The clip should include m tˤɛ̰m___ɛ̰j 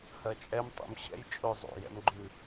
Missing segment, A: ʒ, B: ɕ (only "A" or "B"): B